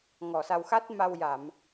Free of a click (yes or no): yes